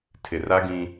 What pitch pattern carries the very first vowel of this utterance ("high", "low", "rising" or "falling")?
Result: low